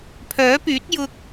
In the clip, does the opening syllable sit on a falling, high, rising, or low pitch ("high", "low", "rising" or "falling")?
rising